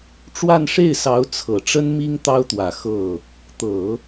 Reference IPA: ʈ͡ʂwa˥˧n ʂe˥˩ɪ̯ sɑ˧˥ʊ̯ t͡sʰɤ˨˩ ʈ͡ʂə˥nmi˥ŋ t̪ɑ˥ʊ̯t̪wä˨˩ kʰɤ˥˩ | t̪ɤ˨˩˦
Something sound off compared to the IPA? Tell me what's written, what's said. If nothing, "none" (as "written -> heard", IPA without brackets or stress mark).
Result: kʰ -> x